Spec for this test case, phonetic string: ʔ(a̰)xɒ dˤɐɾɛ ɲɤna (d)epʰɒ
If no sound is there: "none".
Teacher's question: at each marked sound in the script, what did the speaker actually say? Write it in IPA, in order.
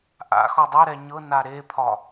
a̰, ɾ

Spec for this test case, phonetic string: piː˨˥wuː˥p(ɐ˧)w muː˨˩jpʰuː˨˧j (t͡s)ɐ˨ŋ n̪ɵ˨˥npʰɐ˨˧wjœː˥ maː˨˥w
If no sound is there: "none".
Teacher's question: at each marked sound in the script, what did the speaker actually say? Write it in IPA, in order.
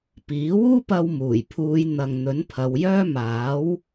ɐ˧, n̪

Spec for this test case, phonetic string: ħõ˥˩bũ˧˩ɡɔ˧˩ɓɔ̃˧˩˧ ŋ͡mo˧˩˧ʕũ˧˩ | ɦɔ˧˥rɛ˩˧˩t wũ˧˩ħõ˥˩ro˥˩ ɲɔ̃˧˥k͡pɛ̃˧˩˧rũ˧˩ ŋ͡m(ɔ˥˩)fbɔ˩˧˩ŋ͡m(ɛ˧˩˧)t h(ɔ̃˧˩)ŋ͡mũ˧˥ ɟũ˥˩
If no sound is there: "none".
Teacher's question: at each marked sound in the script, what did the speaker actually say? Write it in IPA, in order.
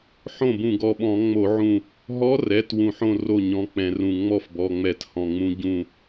ɔ˥˩, ɛ˧˩˧, ɔ̃˧˩

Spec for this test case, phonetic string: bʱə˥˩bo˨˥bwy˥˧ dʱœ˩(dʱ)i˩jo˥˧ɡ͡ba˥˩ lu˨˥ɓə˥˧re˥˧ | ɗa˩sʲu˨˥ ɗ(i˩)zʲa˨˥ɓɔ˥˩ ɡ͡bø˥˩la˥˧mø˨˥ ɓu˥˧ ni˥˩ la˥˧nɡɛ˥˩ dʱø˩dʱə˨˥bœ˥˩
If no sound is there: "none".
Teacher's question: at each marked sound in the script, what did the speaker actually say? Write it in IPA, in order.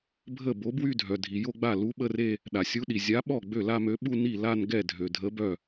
dʱ, i˩

